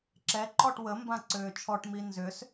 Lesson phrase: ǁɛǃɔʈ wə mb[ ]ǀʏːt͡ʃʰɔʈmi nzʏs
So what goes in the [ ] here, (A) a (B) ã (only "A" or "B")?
B